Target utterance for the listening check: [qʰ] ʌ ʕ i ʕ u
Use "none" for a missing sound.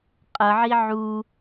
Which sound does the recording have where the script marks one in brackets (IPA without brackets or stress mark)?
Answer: qʼ